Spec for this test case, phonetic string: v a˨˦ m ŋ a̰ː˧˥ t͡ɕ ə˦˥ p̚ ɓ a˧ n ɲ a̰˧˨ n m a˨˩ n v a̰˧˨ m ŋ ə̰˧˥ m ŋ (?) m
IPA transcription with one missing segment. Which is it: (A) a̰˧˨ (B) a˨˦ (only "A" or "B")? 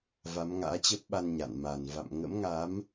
B